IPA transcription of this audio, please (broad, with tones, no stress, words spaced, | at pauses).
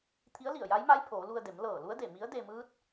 t̪ʰi˧˥ə̯li˧˩ə̯ja˧˥jma˧˥j pʰoː˩˧lu˧ə̯de˩˧m lɤː˧˩lu˧˥ə̯de˧˩ mi˧˥ə̯de˧ mɯː˧˥t̚